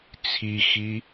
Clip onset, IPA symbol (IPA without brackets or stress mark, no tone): t͡sʰ